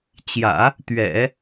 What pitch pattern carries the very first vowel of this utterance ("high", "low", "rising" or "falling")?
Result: low